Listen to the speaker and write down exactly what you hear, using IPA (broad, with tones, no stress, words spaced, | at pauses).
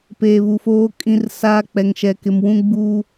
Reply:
peː˨βu˨foː˦ kʼĩ˦rsaː˦ k͡pɛ˨ŋʃɛ˨kɪ˨mwũ˦ ɡ͡buː˦